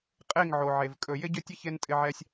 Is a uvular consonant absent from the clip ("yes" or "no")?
no